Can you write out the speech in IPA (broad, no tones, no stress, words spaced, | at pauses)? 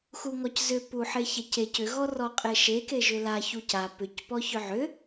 xuŋɔczʏ puħeçɛcec ʏ ɣɔrɔqʼeʃe keʒʏla çuca pʏc pɔçʏʕʏ